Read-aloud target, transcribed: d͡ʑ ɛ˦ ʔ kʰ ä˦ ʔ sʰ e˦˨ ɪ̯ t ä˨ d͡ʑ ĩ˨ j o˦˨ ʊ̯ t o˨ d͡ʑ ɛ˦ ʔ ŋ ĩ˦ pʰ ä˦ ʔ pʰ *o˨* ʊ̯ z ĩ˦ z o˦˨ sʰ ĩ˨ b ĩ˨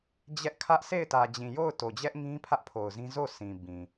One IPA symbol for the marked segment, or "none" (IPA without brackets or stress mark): o˨